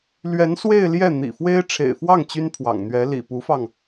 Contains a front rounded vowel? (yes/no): yes